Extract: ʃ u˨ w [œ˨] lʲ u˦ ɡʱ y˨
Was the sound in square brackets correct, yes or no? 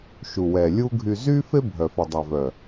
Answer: no